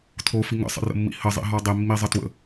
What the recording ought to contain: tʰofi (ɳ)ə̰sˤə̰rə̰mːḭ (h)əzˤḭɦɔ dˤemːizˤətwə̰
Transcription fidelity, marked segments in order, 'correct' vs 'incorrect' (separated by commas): incorrect, correct